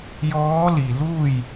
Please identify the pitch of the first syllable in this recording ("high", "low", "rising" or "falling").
rising